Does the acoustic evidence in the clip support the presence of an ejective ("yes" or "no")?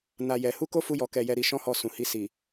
no